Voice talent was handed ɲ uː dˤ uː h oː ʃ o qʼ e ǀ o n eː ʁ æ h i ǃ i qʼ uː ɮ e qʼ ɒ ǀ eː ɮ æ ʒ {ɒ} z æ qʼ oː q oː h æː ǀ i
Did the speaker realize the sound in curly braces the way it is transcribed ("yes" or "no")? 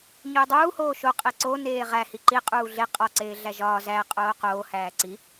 no